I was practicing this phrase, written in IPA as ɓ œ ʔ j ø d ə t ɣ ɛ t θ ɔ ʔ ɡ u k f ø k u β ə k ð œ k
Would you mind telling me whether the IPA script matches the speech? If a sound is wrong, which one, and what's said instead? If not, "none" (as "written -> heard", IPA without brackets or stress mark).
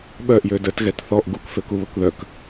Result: none